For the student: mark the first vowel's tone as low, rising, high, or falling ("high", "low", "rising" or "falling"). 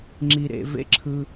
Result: low